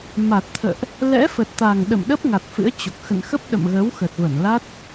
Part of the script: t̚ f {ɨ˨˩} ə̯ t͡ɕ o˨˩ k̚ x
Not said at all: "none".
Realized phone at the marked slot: ɨ̰˧˥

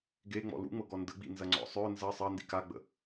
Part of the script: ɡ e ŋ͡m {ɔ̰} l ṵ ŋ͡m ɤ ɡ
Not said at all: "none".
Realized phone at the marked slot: ɔ̰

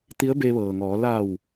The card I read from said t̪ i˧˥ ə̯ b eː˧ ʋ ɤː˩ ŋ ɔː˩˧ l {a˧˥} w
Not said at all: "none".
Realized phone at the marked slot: a˧˩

